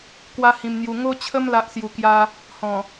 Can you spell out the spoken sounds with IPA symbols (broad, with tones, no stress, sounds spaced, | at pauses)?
k w a˦ h ĩ˧ m n̪ j u˧ ŋ o˦ t͡ɕʰ ə˦ m l a˦ ʔ s j u˧ k j a˦ | h ɔ̃˨˩